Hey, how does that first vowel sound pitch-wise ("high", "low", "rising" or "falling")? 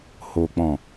low